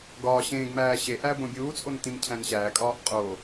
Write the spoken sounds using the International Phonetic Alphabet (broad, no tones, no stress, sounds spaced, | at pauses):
ɡ ɒː ɕ ẽː ɡ m æː ɕ e ʔ æ b õ bʲ uː t͡sʼ o n t ĩ m cʰ æ̃ n ɕ æː kʼ ɒː ʔ qʼ o